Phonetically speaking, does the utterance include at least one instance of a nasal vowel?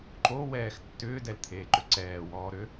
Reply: no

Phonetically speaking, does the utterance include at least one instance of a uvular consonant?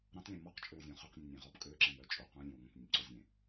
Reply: yes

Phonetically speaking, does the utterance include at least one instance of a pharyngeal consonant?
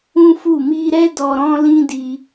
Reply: no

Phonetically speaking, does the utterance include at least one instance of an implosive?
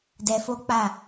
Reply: no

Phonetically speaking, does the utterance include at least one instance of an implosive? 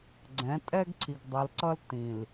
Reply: no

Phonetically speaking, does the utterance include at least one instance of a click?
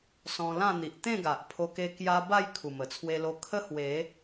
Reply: no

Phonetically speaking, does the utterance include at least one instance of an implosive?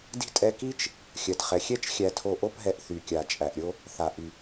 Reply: no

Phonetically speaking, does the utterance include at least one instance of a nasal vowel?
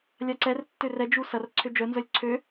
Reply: no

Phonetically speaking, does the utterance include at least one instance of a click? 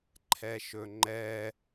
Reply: yes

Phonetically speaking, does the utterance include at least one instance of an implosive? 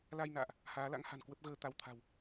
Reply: no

